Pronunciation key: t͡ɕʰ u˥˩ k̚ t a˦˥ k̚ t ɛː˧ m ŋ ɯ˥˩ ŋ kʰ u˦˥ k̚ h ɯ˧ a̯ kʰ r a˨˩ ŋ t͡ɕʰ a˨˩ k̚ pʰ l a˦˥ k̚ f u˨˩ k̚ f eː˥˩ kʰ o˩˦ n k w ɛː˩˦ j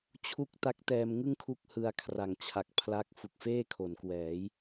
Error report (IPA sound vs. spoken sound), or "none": none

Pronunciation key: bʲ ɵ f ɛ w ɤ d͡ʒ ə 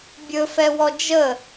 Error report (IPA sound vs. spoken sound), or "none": ɤ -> ɔ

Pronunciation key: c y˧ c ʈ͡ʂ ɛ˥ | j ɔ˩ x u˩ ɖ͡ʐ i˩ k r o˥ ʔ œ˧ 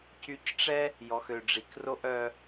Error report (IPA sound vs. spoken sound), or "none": u˩ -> ø˩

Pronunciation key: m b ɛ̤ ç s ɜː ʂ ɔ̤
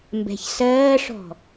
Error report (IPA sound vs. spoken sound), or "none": none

